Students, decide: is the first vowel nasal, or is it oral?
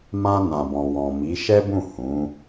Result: nasal